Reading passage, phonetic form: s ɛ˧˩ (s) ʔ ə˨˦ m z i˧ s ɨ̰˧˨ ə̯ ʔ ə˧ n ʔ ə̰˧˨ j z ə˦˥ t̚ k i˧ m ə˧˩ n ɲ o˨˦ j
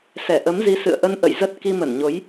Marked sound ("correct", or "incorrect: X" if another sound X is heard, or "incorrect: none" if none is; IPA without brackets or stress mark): incorrect: none